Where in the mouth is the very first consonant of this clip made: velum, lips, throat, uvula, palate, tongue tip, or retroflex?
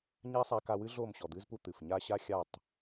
palate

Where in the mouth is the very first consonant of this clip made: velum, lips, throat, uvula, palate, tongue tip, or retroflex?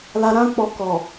tongue tip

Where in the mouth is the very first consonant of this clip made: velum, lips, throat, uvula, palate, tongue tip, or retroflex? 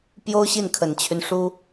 lips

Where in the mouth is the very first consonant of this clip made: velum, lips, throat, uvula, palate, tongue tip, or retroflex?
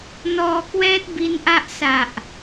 tongue tip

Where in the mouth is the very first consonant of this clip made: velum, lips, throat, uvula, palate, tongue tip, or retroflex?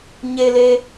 palate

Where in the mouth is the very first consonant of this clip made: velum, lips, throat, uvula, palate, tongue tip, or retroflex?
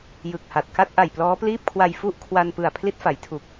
palate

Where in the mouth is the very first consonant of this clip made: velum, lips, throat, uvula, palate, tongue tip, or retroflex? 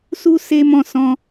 tongue tip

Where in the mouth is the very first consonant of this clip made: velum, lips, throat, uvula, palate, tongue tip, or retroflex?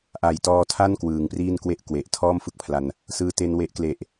throat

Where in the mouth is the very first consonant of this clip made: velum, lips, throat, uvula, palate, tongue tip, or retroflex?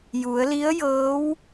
palate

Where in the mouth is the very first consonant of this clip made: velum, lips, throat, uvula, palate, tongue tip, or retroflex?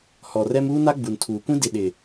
throat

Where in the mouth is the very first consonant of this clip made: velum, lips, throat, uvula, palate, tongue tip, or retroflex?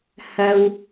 throat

